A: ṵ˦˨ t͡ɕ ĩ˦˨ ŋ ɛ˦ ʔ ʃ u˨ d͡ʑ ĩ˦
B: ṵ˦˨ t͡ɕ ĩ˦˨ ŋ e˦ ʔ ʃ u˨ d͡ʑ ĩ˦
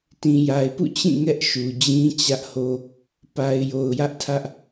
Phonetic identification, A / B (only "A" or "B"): A